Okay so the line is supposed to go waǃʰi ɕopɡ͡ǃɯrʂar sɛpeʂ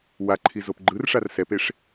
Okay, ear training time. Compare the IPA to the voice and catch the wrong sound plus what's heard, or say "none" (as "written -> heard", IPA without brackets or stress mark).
ɕ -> z